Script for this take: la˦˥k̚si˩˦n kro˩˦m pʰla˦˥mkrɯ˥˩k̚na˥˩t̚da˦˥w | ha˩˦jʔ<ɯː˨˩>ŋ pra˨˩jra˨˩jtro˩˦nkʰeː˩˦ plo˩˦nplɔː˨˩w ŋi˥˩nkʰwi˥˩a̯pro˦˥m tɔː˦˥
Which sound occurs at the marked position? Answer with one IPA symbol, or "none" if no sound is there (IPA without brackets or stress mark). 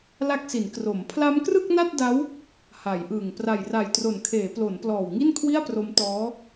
ɯː˨˩